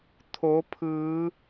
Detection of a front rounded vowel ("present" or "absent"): absent